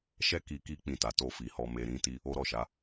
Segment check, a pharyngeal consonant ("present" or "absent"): absent